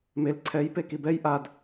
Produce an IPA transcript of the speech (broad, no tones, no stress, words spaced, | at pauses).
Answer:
mel ǀʰɛj pekibɛj ʔad